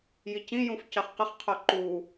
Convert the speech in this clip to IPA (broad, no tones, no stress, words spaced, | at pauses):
jicĩjũf cɑχqəχqʰɔ ǃu